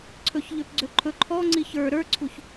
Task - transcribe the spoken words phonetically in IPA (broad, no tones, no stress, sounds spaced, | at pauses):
ǀʰ ɵ ç ʎ ø p ɡ͡ǀ ø ǃʰ ɵ ǃʰ ɔ ŋ͡ǀ i ç ə˞ ɾ ə˞ ǀʰ u ç